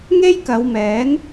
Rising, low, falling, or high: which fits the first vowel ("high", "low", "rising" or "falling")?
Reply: high